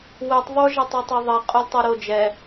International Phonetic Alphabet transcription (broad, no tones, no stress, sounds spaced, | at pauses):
w ɛ tˤ ðˤ o ʒ ɛ tˤ u tˤ ɛ ðˤ ɛ qʼ o lʲ tˤ o ɾ o d͡ʒ ɛ